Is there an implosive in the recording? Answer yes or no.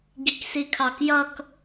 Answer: no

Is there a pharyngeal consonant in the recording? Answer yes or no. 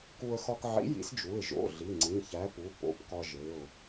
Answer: yes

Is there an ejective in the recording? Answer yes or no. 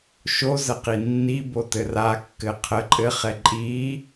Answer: yes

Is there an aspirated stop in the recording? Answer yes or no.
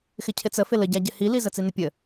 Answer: yes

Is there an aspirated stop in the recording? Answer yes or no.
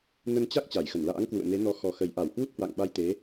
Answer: no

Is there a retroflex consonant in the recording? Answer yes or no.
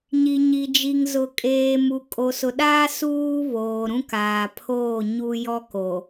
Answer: no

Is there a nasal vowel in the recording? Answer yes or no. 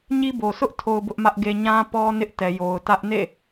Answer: yes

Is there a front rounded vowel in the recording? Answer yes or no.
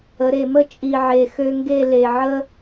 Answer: yes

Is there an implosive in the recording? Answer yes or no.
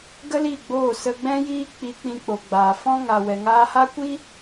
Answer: no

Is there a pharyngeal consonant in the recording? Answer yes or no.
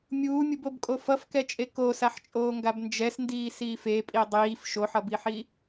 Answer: yes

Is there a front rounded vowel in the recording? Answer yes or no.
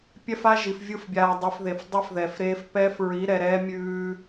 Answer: no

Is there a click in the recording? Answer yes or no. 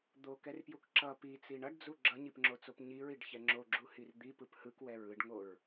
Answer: yes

